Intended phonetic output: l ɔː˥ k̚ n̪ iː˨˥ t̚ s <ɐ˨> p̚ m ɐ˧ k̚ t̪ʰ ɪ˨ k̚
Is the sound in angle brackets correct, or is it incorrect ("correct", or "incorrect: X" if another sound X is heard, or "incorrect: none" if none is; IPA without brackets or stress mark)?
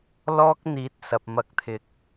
correct